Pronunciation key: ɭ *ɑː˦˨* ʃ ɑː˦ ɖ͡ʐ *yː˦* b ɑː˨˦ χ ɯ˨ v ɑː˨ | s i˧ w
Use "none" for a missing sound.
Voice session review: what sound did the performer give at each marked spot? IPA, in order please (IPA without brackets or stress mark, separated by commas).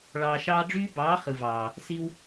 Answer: ɑː˧, yː˦